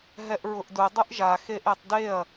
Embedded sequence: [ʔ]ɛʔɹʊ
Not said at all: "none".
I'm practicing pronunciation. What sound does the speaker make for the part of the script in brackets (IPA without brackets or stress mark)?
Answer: ɦ